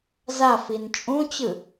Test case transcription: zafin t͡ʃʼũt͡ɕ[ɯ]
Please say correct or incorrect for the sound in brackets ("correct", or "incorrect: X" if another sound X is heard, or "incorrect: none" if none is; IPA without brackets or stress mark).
correct